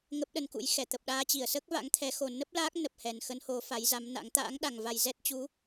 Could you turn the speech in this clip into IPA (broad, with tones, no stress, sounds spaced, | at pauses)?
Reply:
ŋ ə˦˥ p̚ ɗ ə˧ n k ṵ˧˥ j x ɛ˧˩ t̪ ə˨˩ p̚ ɗ aː˧ t͡ɕ i˧˩ ə̯ s əː˦˥ k̚ v a̰˧˥ ŋ t̪ʰ ɛ˨˦ x o˨˩ n ə˦˥ p̚ l aː˦˥ k̚ n ə˨˩ p̚ h ɛ˨˩ n x ə˨˦ n h o˨˦ f a˨˦ j z a˨˦ m n a̰˧˥ ŋ t̪ a̰ː˧˥ ŋ ɗ a˨˩ ŋ v a˨˩ j z ɛ˦˥ t̚ t͡ɕ u˨˦